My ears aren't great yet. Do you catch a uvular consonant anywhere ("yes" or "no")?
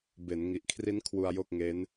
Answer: no